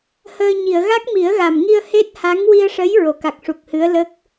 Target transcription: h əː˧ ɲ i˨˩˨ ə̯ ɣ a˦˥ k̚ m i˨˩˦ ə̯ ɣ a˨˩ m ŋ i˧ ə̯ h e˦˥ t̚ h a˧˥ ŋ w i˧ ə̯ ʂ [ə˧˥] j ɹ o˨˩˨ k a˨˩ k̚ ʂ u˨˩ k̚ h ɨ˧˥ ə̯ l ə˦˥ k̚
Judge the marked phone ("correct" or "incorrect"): correct